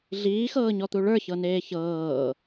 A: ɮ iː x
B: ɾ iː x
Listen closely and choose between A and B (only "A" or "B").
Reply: A